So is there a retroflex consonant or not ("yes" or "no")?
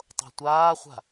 no